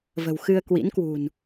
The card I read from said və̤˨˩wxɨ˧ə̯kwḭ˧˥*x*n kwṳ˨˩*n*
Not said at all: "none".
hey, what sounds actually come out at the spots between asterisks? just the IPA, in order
none, n

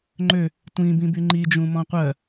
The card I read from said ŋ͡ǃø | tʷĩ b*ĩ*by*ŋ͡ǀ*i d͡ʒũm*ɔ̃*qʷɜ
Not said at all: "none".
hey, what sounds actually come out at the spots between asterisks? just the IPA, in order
ĩ, ŋ͡ǃ, ɔ̃

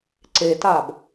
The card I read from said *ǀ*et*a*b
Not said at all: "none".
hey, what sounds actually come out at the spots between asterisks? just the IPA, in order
ǀ, a

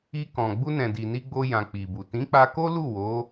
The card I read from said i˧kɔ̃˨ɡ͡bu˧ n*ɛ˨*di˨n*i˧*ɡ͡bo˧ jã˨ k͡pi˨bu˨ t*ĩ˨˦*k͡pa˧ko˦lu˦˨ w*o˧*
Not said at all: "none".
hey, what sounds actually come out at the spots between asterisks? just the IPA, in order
ɛ̃˨, i˧, ĩ˨˦, o˨˦

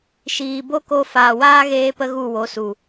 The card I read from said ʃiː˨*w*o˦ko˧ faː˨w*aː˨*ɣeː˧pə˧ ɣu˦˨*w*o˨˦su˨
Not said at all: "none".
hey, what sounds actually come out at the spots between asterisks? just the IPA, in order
b, aː˦, w

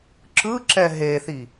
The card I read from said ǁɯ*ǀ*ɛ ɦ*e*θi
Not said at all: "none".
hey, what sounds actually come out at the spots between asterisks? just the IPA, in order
ǁ, e

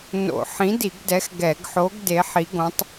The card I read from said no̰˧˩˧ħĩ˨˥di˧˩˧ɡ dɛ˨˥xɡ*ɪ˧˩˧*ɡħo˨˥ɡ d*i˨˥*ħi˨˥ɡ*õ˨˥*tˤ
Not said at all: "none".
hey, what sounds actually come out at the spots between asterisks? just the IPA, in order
ɛ˧˩˧, e˨˥, õ˨˥

